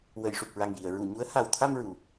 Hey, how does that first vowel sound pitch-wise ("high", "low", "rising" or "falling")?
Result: low